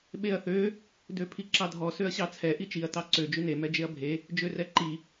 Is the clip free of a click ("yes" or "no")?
no